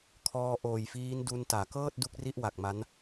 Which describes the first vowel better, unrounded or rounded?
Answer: rounded